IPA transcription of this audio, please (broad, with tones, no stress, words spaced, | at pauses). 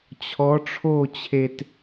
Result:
t͡ɕʰɔ˨˦ʈ͡ʂʰo˦˨t͡ɕʰe˨t